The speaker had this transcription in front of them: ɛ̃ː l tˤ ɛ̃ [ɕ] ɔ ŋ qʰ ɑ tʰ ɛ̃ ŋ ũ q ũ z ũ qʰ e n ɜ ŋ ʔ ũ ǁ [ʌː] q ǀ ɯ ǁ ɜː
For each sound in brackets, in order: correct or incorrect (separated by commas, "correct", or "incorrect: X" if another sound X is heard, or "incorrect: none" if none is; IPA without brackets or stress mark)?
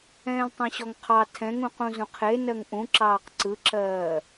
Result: correct, incorrect: ɑː